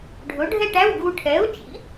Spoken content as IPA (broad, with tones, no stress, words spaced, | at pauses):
ɖʱʊ˨˥ɖʱɛ˥˧ʈæ˧˥˧w ɡu˧ʈʰɛ˨˥ʊ̯t͡ʃḭ˨˥